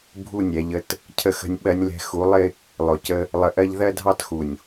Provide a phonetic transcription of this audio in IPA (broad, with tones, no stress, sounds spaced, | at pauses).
bʱ u˦˨ nʲ ɛ˨ ʎ ə˦ t | cʰ ə˨ x ə̤˨ nʲ ɓ ɜ˨ nʲ l ɛ̤˨ x u˨˦ lˠ ɪ˦ | lˠ ʊ˨ c ə˦ | lˠ ə˨ ʔ ɜ˦ ʎ ð ɜ˦ dʱ ɑ˦ t x u˨ nʲ